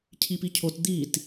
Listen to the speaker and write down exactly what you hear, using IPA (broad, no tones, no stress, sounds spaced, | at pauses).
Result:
cʰ i p i cʰ o t d̪ i t